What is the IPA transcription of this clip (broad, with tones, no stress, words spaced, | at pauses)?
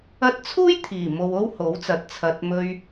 ɐ˥t̚ t͡sʰuː˥jt̪ʰiː˨˩ mo˧wo˥who˨˥wt͡sɐ˨˥t̚ t͡sʰɐ˨t̚mɵ˧ɥ